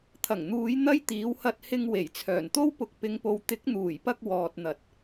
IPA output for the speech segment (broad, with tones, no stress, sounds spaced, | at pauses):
t̪ʰ ɐ˨˩ ŋ n̪ uː˨˧ j n̪ ɐ˥ j t̪ iː˨˥ w h ɐ˧ t̚ h ɪ˧ ŋ w e˨˩ j t͡sʰ œː˨˩ n t̪ o˥ w p ʊ˨˥ k̚ p ɪ˨˧ ŋ p o˨ w t̪ ɪ˨˥ k̚ n̪ uː˨˩ j p ɐ˧ k̚ w ɔː˨ t̚ n̪ ɐ˨˥ t̚